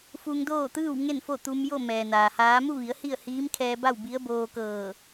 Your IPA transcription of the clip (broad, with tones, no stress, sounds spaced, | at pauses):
f u˧ ŋ d oː˥˨ t̪ ɯː˥˨ w ŋ e˥˨ n f o˥˨ t̪ u˧ m j o˥˨ m ɛː˩ n aː˩ h aː˧˥ m u˥˨ ʋ i˩˧ ə̯ h i˥˨ ə̯ h iː˧˥ m kʰ ɛː˧ b a˥˨ w b i˧˥ ə̯ b oː˧ k ɤː˧˩